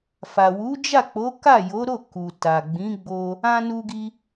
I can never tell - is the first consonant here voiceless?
yes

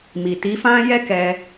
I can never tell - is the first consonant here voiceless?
no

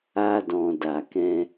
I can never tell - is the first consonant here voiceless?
no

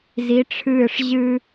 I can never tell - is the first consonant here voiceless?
no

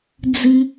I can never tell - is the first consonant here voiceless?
no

